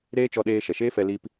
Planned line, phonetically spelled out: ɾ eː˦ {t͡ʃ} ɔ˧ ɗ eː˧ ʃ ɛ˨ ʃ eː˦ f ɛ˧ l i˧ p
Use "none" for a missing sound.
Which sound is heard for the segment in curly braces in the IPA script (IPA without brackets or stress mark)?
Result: t͡ʃ